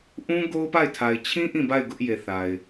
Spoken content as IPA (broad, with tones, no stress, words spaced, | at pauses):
ʔũ˦ ɡo˦ʊ̯pa˦˨ɪ̯tʰa˨ɪ̯ t͡ɕʰĩ˦ ʔĩ˦˨ba˦˨ɪ̯ ɡʊ˦ʔje˨θa˨ɪ̯